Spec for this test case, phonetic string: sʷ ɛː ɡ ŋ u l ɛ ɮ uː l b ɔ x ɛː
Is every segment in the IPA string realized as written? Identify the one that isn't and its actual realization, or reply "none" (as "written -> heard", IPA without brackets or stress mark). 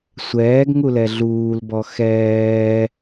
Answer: none